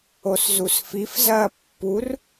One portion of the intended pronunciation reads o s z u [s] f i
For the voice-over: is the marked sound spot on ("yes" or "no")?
yes